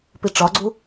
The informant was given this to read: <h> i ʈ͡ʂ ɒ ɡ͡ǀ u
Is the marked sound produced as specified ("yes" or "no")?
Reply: no